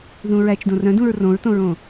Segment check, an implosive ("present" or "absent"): absent